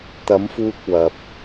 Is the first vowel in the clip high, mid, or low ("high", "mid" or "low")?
low